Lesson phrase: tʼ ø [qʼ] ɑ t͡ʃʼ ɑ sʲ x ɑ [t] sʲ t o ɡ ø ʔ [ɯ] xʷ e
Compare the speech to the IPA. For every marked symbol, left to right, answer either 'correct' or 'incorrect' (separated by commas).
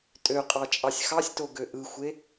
correct, incorrect, correct